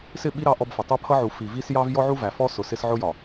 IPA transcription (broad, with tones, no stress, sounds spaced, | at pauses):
s ɪ˦˨ ɓ i˦ ɾ ɑ˦ ʔ ɔ˦ b f ʌ˨ tˤ ʊ˦ pʰ ʌ˦ ʕ u˨ f i˨ v i˦ s j ɑ˦ v j ɔ˦ ʕ u˦ v æ˨ f ɔ˦ s ʊ˨ s ɪ˦ s ʕ ʊ˦ j ɒ˨